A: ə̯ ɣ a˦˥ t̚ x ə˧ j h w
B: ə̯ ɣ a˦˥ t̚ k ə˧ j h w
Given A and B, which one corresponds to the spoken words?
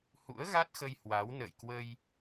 A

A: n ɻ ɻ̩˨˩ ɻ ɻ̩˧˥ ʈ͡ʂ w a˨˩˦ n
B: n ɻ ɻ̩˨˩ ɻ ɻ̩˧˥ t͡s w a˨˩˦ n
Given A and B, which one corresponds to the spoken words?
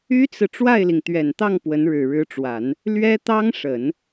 A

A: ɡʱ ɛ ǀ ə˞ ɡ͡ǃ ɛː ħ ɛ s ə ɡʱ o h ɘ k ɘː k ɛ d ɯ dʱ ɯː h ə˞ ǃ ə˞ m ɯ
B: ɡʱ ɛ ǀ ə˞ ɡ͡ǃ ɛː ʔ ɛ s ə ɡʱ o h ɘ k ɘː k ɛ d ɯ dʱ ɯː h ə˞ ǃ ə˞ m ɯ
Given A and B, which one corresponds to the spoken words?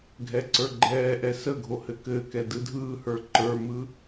B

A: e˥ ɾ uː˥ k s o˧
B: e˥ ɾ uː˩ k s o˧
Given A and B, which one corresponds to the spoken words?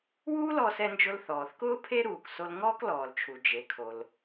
B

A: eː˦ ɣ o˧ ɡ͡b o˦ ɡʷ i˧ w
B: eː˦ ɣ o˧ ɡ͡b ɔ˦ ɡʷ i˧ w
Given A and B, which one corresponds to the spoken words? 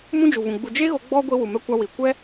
B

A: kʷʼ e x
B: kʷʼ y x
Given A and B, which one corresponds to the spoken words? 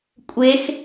A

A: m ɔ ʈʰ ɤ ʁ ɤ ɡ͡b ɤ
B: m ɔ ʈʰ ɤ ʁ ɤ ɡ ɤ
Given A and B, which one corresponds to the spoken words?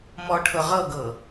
B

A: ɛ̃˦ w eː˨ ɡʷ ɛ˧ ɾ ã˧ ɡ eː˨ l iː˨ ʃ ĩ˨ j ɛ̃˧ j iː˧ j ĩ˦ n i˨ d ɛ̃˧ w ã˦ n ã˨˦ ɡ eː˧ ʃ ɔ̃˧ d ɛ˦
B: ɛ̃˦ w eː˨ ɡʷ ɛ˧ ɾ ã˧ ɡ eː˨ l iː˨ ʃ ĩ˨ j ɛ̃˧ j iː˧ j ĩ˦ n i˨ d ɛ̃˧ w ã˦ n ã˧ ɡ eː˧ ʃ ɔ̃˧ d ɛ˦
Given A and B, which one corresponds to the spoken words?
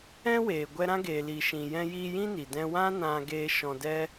B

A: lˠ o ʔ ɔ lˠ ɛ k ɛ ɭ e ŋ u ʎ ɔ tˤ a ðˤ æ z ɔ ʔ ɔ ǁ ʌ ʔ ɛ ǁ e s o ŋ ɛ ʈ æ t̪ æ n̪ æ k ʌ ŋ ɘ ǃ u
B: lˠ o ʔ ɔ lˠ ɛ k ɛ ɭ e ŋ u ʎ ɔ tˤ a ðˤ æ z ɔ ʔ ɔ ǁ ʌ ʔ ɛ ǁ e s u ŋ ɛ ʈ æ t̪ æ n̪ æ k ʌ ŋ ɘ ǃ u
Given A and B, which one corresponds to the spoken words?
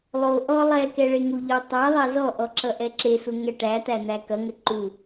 B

